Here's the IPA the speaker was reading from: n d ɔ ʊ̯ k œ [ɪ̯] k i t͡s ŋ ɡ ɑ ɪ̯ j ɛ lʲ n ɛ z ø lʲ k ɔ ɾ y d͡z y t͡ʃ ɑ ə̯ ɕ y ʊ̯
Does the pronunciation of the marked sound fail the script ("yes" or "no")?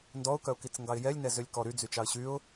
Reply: yes